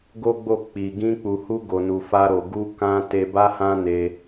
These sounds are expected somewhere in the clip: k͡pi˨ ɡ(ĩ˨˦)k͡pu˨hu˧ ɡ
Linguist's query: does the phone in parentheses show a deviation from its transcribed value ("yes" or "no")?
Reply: yes